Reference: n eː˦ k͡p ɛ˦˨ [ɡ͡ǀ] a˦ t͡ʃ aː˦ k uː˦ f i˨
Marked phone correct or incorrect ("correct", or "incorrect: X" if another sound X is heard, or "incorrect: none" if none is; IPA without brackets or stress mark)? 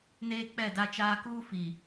incorrect: d